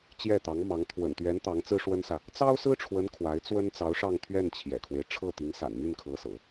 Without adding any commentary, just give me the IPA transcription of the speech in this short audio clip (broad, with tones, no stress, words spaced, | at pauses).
t͡ɕjɛ˥˩t̪ɑ˧˥ŋmɑ˧˥ŋ t̪ʰwə̰˨˩nt̪ɥɛ˧˥n t̪ɑ˧˥ŋt͡sɹ̩˥ʂwə˥nsä˨ | t͡sɑ˥ʊ̯sɹ̩˥ʈ͡ʂʰwə˧˥n kʰwa˧˥ɪ̯t͡swə˥n t͡sɑ˧˥ʊ̯ʂɑ˥˧ŋt̪ʰɥɛ˥˩n t͡ɕʰjɛ̰˨˩kʰwe˦ɪ̯ ʈ͡ʂʰɤ˥˩t̪i˧˥ŋsa̰˨˩n my˥˩nkʰɤ˧˥sɤ̰˨˩˦